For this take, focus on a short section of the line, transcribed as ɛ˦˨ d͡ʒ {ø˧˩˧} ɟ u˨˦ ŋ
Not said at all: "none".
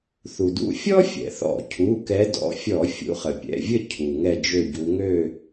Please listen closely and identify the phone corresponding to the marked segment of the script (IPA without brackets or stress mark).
ø˦˨